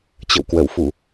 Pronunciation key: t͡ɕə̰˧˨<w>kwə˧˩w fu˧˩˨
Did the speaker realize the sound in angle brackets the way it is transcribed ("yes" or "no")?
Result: yes